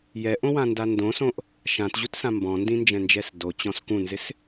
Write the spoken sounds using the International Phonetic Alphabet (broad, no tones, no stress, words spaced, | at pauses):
jɛʔõwãnda ndõsõʔ | ʃãtʑutsã mbɔ̃ndĩnd͡ʒɛ̃nd͡ʒɛs dot͡ɕɔ̃s kũnzɪs